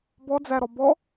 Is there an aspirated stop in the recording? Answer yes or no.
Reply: no